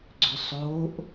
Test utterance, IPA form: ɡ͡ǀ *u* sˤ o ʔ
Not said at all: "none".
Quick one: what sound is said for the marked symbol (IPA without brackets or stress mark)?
ʏ